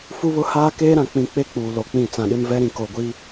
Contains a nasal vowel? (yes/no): yes